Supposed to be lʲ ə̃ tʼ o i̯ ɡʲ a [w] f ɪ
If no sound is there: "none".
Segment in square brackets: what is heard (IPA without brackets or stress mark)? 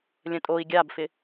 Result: b